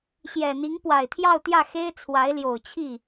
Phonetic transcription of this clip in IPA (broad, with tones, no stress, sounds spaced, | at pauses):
ɕ j ɛ˨˩ n̪ i˧˥ ŋ p w a˨˩ ɪ̯ t̪ʰ j ɑ˥˧ ʊ̯ t̪ j ä˥˩ x e˥ ɪ̯ t͡sʰ w a˧˥ ɪ̯ l j o˨˩ ʊ̯ t͡ɕʰ i˥˩